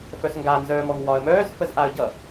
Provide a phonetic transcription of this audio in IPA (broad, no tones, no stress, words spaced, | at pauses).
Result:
fœsŋɡa nzœːmɔŋwɒə̯mœːz fəzʔaə̯ɟʌ